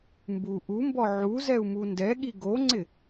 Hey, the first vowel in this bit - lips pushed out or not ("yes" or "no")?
yes